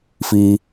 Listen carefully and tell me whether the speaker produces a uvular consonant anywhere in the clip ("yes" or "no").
no